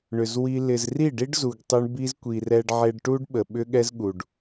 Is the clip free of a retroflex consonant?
no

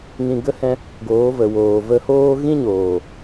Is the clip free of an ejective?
yes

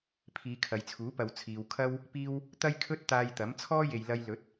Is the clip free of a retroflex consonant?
yes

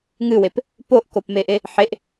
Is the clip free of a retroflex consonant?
yes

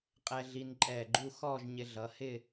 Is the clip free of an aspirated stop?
yes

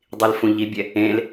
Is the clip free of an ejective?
yes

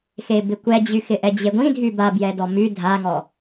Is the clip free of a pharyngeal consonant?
yes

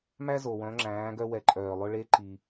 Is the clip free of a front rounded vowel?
no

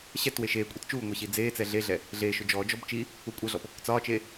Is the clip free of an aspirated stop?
yes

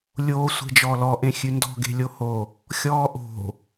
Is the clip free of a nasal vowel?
no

